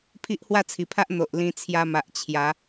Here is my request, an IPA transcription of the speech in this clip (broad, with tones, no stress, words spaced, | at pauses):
pʰi˦ʔhwa˥˧t͡sʰi˨˩pʰa˦ʔ n̪o˨ʔlĩ˧ t͡sʰja˧ma˨ʔ t͡ɕʰja˨˦